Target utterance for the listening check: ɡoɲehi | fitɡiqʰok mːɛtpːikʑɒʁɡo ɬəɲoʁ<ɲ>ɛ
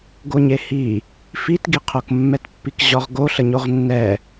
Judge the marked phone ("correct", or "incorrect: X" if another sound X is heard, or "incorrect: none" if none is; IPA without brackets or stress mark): incorrect: nː